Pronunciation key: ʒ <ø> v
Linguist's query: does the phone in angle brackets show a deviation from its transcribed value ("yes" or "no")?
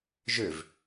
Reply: no